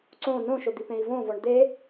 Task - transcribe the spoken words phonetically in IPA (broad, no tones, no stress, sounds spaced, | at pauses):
ǀ õ n õ ʃ o d̪ i p ẽ i̯ v õ v ɔ ɳ d̪ e